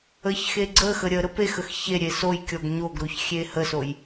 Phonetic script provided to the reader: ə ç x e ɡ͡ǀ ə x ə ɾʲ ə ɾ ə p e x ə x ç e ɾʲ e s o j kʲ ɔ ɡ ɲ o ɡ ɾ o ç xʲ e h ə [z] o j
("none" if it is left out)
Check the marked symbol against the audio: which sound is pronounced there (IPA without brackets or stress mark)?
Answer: s